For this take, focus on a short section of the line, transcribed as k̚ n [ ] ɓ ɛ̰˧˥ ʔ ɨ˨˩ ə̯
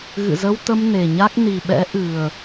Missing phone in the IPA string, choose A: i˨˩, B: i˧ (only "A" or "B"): A